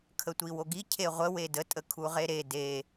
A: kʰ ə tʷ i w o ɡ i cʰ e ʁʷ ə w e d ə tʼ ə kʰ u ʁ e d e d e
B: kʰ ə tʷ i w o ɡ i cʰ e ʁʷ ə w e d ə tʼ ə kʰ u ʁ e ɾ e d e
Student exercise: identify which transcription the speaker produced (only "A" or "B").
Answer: B